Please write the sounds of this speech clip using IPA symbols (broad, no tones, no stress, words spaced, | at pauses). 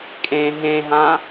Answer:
kʼẽ ɦẽɦã